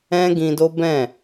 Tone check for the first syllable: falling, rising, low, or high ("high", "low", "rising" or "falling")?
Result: high